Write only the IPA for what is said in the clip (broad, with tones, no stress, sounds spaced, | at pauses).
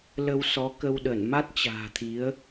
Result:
l ə˧ w s ɔ˨˦ k ə˧ w ɗ ə˧˩ n m a˦˥ t̚ t͡ɕ a̤ː˨˩ t̪ʰ i˨˦ ə̯